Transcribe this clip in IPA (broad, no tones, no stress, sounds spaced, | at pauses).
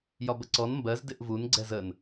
j ɒ b ə ǀ ɔ n m b ɜ z d ɪ ʔ v u n ɡ͡ǀ ɛ z ə n